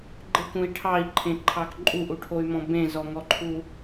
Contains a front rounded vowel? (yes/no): yes